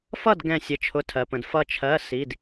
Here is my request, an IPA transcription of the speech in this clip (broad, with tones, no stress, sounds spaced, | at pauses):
f ʌ˥˨ d ɡ ɛ̃˧˩ sʲ ə˩˥ t͡ʃʰ ʊ˩˧˩ tʰ ɜ˩ p ə̃˩ d f ʌ˧˩ t͡ʃʰ ɜ˩˧˩ s i˩˧˩ d